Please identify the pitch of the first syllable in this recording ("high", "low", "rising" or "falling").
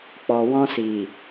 low